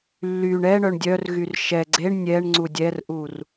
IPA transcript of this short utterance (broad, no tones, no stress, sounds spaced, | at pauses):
lː y ɳ ɛ ɳ œ ɳ dʲ œ r ɣ y r ʃ ɛ ɡ͡ǀ e ɳ nʲ ɛ ɳ ŋ͡ǀ u dʲ ɛ r ʔ u r